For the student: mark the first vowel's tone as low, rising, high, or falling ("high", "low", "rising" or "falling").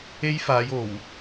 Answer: high